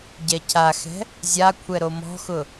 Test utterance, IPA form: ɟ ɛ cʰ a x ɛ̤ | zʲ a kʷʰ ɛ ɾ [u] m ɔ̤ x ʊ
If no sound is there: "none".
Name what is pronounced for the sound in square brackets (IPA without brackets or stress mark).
o